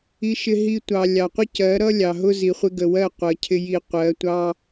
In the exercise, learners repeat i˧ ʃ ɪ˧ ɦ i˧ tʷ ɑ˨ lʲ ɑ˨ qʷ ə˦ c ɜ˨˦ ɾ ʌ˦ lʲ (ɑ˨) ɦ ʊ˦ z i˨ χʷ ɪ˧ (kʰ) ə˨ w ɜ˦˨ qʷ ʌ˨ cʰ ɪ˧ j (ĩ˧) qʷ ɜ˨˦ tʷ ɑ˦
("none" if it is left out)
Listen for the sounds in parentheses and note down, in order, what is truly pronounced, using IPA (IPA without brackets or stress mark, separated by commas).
ɑ˨, ɡ, i˧